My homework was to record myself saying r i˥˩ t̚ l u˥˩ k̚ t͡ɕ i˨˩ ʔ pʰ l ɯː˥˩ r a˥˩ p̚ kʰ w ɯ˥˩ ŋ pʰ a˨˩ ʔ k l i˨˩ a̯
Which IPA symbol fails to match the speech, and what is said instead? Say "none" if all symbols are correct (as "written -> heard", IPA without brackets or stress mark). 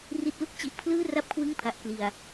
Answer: none